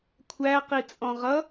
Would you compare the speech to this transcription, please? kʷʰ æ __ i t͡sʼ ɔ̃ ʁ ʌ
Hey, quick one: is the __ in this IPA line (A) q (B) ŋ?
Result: A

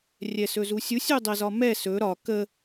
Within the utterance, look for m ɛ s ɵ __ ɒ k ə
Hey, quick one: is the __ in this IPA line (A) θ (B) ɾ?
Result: B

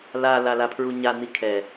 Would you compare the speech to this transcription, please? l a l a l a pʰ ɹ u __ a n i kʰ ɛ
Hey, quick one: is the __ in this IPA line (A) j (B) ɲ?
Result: B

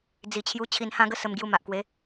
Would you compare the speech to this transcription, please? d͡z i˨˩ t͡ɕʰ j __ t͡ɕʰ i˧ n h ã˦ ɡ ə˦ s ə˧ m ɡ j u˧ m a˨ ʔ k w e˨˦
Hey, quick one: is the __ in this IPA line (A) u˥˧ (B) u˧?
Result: B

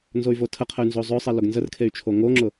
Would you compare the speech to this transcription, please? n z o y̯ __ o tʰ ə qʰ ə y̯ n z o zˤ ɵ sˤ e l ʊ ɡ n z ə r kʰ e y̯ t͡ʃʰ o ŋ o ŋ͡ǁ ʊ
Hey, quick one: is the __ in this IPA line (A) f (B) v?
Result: B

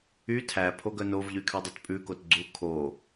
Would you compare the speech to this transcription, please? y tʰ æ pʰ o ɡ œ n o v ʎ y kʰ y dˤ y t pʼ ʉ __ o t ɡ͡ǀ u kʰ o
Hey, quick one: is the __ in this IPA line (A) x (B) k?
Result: B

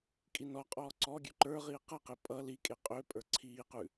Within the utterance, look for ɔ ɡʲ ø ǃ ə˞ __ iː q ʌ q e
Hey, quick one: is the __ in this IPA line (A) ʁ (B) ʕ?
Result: A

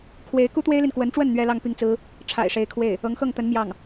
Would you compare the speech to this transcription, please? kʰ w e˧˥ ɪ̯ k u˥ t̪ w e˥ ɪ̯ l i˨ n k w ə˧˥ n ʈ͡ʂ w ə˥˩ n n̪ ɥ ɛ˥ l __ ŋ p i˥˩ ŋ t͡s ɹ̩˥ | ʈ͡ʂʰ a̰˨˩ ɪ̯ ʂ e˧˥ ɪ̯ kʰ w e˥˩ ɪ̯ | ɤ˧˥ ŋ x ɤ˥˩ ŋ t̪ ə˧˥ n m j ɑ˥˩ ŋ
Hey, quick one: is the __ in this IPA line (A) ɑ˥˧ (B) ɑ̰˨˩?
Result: A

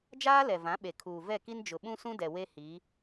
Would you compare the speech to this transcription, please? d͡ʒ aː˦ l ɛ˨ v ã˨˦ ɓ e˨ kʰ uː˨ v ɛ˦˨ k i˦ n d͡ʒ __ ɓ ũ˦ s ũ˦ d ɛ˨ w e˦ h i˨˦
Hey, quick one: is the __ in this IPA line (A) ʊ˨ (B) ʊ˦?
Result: A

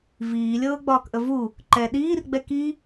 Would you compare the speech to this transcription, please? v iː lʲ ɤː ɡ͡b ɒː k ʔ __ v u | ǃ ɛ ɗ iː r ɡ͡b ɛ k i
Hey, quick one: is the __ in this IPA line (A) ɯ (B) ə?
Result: B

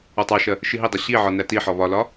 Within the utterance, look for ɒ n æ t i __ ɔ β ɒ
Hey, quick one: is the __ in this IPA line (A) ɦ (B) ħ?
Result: B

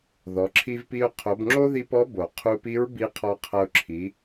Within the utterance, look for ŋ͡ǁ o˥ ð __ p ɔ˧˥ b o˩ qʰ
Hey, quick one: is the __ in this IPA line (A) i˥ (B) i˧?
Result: B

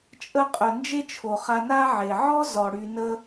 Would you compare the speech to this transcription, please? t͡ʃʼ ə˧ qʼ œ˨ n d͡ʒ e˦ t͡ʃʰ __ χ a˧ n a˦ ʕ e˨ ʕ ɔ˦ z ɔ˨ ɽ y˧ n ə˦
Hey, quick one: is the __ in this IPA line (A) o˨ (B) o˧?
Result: A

